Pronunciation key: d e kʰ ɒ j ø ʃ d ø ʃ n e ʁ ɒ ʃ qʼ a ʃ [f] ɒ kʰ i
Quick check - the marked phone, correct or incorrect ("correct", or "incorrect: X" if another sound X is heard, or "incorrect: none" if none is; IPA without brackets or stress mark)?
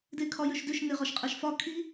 correct